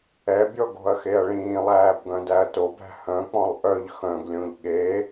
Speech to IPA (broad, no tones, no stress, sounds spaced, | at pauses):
ɛ bʲ ɔ ɡ o̤ ɐ̯ x e ɐ̯ ɭ ĩː lˠ æː b ɡ œ̃ d æ ɐ̯ t o b æ̤ h œ̃ k͡p ɔ̃ lˠ ʔ œ ʎ x œ̃ ɡ lʲ õ ʎ ɠ e